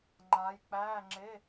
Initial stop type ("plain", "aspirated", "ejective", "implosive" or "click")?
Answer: click